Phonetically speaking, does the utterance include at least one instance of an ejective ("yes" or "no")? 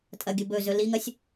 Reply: yes